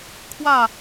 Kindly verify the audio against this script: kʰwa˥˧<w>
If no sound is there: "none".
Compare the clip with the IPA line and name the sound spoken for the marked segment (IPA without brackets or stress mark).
none